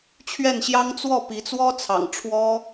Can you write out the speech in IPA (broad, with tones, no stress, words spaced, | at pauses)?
t͡ɕʰɥɛ˥˩nɕjɑ˥ŋ t͡swɔ˥˩ pi˧˥t͡swɔ˥t͡sʰɑ̰˨˩ŋ ʈ͡ʂʰwɔ˥